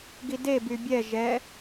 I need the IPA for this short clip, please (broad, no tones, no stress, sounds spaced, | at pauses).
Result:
ɡ i d e b y bʲ ɛ ʒ ɛ